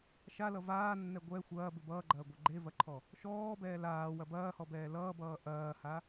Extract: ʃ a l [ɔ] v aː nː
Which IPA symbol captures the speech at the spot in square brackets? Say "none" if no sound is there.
ʌ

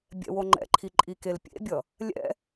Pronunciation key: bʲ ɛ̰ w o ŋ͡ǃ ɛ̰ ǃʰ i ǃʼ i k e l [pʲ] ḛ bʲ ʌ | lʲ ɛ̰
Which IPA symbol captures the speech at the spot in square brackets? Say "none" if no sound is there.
pʲ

